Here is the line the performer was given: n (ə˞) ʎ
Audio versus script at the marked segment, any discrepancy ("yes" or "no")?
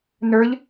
no